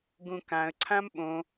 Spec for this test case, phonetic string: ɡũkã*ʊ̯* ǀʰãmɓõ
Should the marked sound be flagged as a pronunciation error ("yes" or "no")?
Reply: yes